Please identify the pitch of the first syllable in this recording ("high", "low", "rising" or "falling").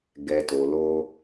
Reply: low